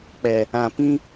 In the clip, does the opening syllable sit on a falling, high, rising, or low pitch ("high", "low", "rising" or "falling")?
low